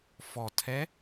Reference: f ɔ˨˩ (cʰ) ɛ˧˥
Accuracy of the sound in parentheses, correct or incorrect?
incorrect